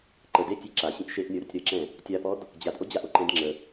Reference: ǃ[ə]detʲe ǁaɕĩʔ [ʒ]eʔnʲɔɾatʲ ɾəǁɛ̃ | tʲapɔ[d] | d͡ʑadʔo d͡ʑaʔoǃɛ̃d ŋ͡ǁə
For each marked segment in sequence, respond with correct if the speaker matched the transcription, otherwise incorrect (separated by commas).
correct, incorrect, correct